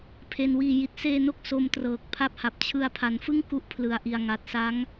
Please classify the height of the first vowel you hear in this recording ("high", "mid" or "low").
mid